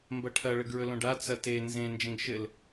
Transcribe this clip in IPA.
m b ɐ ʈʰ ɐ ɭ ɘ ɡ ɹ ɵ l õ ɖ a t͡s ɐ t e n z ẽ n d͡ʒ ẽ ɡ ʃ ɘ l

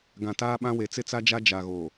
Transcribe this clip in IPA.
ɡ ã˨ t aː˦ ɓ ã˦ w e˨˦ t͡s ɪ˦ t͡s a˦ d͡ʒ a˦ d͡ʒ a˨ ɣ o˨

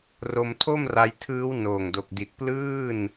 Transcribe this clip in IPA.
r o˧ m tʰ o˥˩ m r a˧ j tʰ ɯː˦˥ w n oː˨˩ ŋ d o˨˩ k̚ d i˨˩ t̚ p l ɯː˥˩ n

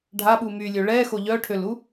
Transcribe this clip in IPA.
ɖʱ a ɓ u m y lʲ ø ɭ ɛ x o ʎ œ ʈʰ ø l u

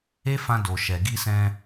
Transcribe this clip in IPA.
e˦ f ã˧ d o˨ ʃ ɛ˨ ɡ i˧ s ɛ̃˧

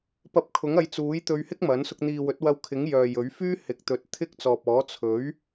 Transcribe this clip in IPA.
p ɐ˧ p̚ kʰ ʊ˨˥ ŋ ɐ˨˧ j t͡s uː˨˥ j t̪ ɵ˧ ɥ h ɪ˥ k̚ m ɐ˨˥ n s ʊ˧ k̚ n̪ iː˨ w ɵ˨˥ t̚ w ɐ˧ w kʰ ɪ˨˥ ŋ j œː˨ j ɵ˨˥ ɥ f yː˥ h ɪ˨˥ k̚ t̪ ɵ˨˥ t̚ t̪ʰ ɪ˥ k̚ t͡s ɔː˨ p̚ ɔː˨˥ t͡sʰ ɵ˨˥ ɥ

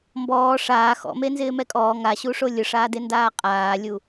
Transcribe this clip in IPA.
m b ɔː ʂ aː x ɔ̰ m e n z ɪː m ɛ kʼ ɔː ŋ a ɕ u ʂ o lʲ ʊ ʂ aː d e n d aː qʼ aː lʲ u

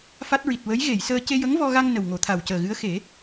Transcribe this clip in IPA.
f a˦˥ t̚ ɹ i˨˩ t̚ w ə˧˥ j ɣ e˨˩˨ j s əː˧ c e˧ j ə˧˥ ŋ v ɔ˧ ɣ a˧ ŋ n ə˨˩ w ŋ o˨˩˨ t̪ʰ a˨˩ w c əː˨˩ ɣ ɨ˧˥ ə̯ x e˨˩˦

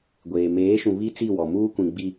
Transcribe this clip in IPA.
ɡʷ eː˨ m eː˨˦ ʃ ũ˨ β i˦ t͡s i˦˨ w ɔ˨ m uː˦ kʷ ĩ˨ ɡ͡b i˨

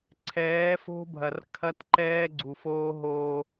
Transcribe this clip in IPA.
ǀʰ ɛː˨˦ f o̤˦ bʱ ɐ˨ r kʰ ɐ˦ t ǃ ɛː˦ ɡ͡ǀ u˨ f oː˦ ɦ oː˦

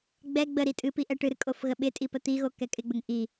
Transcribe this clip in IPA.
ɡ͡b ɛ ɡ͡b ə ɾ i tʼ ɨ p i ʔ ɛ ʈ ɨ ɾ ɨ kʼ o f ɣ ə ɓ ɪ tʼ i p ə t̪ i ɣ o k ɛ kʼ ɪ ɡ͡b ə ŋ ʔ i

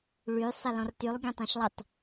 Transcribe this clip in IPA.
ɭ y sˤ ɪ l ɔ̃ r t y lˠ ɡʲ œ̃ tˤ ã ʃ lˠ ɪ tˤ

